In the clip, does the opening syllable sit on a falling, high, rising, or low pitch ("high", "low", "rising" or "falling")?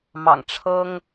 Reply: low